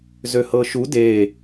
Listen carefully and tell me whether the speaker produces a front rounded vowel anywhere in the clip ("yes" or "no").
yes